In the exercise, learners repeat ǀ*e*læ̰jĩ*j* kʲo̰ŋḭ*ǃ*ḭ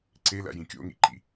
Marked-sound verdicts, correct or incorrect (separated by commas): correct, incorrect, correct